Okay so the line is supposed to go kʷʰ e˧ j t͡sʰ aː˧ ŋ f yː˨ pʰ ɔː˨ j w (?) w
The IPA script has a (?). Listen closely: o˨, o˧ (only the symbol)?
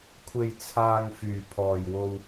o˧